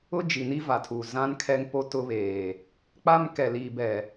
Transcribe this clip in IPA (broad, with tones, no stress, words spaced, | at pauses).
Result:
ʊ˦d͡ʒi˨ni˦ va˨tʰu˨ zã˦nkʰɛ˦ŋpo˦ tʊ˦βeː˨ | k͡pa˦m kɛ˨liː˨bɛ˨